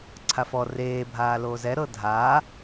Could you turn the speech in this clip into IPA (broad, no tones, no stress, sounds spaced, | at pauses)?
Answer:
ǀʰ a f ɔ r eː bʱ aː l oː z ɛ ɾ ɤ dʱ aː